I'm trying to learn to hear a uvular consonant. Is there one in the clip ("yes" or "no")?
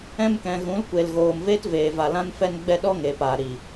no